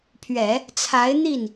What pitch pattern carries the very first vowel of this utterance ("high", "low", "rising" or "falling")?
low